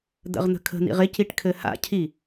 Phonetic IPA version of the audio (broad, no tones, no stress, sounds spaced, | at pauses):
d̪ ə̰ ʁ n̪ ə̤ kʰ ə̤ n̪ ḭ ʁ ɪ c i ʈ kʰ ɘ h a̰ cʰ i